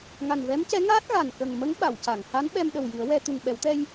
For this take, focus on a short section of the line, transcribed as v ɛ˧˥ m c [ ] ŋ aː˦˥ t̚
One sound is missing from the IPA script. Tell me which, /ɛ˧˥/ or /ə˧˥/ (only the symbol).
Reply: ɛ˧˥